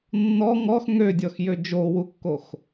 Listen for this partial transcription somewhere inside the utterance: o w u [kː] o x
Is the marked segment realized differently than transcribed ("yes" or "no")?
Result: no